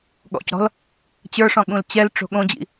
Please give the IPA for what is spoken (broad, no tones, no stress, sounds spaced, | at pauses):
ɠ ɔ̰ c ɾ ɔ̤ l | t͡ɕ ə˞ ʂ ɔ̃ ɠ ũ l t͡ɕ ɛ l ʈ͡ʂ o̤ ɠ õ d͡ʑ ḭ